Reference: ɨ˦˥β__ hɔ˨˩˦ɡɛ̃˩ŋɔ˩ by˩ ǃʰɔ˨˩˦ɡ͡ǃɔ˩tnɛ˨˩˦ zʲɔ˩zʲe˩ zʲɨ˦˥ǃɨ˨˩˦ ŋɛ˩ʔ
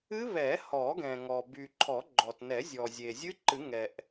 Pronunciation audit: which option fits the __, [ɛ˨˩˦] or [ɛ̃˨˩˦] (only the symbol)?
ɛ˨˩˦